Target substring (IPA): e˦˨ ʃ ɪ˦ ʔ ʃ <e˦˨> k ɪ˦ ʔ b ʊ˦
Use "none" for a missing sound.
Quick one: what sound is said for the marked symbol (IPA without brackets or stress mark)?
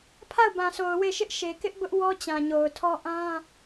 e˨